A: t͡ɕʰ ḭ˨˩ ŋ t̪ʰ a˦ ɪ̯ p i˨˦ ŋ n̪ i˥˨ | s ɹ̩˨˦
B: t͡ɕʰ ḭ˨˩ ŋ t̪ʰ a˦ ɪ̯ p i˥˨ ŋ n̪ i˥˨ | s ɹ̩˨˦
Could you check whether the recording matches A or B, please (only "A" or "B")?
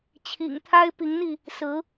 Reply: A